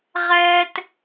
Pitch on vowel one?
high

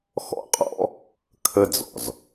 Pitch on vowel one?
high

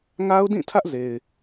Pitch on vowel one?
high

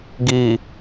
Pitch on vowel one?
low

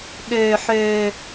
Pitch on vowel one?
low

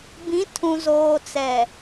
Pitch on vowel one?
rising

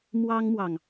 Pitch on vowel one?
high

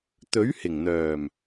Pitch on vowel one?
rising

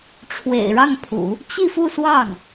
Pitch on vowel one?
low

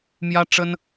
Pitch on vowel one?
high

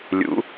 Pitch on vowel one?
rising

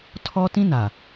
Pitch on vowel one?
high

